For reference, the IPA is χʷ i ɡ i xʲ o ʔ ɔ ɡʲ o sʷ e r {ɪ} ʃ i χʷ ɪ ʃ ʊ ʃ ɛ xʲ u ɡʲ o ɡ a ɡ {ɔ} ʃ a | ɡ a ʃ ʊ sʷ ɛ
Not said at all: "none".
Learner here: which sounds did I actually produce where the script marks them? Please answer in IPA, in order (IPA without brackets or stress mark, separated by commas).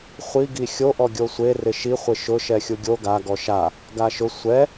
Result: ɪ, ɔ